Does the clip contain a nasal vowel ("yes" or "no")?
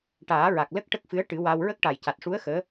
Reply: no